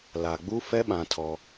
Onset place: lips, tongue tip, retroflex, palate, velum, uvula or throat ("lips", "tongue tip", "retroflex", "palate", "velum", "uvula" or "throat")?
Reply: tongue tip